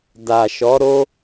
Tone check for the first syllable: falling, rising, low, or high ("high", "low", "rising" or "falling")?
low